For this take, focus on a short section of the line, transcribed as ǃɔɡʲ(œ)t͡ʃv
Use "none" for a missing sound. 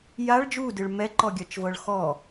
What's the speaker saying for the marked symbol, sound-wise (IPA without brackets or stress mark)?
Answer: œ